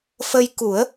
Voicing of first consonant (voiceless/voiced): voiceless